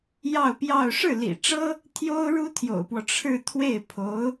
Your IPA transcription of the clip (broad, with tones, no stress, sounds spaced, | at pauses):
j ɑ˥˧ ʊ̯ p j ɑ˥˧ ʊ̯ ʂ ɻ̩˥˩ l ḭ˨˩ ʈ͡ʂ ɤ˥ | t̪ʰ j o˥ ʊ̯ ɻ u˥ t̪ʰ j o̰˨˩ ʊ̯ p w ɔ˦ ʈ͡ʂʰ ɻ̩˥˧ t̪ʰ w e˥˩ ɪ̯ pʰ o˧˥ ʊ̯